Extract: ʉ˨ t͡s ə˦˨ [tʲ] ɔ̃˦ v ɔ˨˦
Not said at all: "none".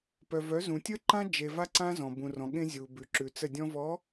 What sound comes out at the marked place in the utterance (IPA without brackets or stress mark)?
dʲ